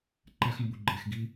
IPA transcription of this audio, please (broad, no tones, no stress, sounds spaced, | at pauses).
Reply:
ǃ æ x m b u ɡ͡ǃ e x ɡ i